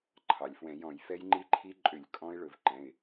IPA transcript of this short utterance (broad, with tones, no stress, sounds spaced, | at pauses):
ǃʰ ɑ˩ lʲ f w ɛ̃˧˩˧ j ɔ̃˧˩˧ j f ɛ˦˥ j ŋ͡ǃ i˦˥ ǃʰ i˦˥ ǃʼ ʏ˧˩˧ lʲ kʼ ɔ̃˦˥ ɪ̯ ɭ ɵ˧˩˧ v ǃ ɛ̃˩˧˩ ɪ̯